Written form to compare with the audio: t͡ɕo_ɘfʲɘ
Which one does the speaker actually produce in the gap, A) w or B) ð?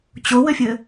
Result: A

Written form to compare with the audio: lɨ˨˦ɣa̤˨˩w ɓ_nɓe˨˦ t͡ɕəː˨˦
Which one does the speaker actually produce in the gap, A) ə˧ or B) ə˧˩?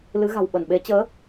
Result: B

